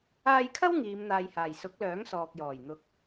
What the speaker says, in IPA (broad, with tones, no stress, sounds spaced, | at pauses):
aː˧ j kʰ ɐ˥ w ŋ iː˨˧ m n̪ aː˨ j h aː˨˩ j s ʊ˨˥ k̚ l œː˨˥ ŋ s ɔː˨ k̚ j ɔː˨˩ j n̪ ʊ˨˥ k̚